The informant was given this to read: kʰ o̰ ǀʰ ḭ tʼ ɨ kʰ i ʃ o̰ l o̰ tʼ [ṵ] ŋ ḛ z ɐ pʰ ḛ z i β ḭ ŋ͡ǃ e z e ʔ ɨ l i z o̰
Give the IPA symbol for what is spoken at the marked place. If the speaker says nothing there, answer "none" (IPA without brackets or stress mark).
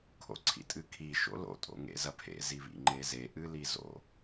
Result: o̰